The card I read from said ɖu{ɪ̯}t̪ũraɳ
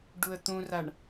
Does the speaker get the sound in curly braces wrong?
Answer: yes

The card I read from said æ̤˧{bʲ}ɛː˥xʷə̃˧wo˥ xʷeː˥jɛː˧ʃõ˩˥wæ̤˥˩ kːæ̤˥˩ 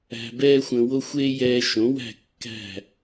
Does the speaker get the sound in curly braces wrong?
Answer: yes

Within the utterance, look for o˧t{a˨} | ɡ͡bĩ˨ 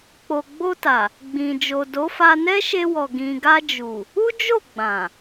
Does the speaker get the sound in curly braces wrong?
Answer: no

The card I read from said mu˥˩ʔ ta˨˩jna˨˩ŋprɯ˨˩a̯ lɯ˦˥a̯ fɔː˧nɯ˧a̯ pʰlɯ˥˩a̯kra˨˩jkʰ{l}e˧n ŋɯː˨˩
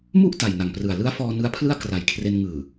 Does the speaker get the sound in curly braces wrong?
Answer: yes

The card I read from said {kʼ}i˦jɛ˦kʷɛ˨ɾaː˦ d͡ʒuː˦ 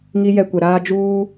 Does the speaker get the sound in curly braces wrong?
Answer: yes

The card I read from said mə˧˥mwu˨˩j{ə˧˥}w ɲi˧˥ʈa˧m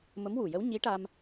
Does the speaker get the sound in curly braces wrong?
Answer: no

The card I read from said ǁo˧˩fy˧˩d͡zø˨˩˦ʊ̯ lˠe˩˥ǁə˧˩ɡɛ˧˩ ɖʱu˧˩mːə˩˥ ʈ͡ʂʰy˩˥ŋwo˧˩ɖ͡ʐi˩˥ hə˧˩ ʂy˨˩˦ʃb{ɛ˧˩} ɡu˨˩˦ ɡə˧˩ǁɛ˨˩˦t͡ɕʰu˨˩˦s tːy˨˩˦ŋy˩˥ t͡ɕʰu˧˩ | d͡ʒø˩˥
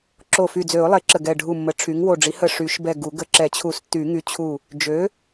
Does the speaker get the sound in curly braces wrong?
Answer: no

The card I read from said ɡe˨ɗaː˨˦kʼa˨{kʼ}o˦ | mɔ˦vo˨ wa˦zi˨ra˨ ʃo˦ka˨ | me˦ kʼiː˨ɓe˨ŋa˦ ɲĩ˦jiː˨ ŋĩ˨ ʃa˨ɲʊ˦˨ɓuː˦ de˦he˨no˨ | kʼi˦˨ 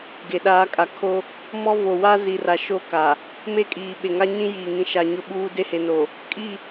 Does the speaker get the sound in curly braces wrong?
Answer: yes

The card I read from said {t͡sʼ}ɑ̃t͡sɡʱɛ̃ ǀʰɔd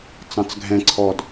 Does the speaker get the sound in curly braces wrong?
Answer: yes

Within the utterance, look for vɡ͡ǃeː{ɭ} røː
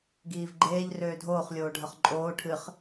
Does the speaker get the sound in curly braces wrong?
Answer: yes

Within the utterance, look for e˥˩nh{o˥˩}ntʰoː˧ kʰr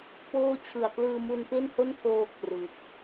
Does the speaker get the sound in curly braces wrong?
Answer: no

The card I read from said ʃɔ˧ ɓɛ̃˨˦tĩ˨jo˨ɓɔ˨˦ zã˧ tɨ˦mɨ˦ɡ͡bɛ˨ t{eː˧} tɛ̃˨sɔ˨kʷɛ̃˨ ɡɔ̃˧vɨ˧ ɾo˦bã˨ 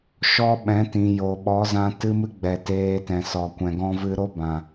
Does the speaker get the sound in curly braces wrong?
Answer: no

